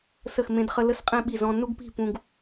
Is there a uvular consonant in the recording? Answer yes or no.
yes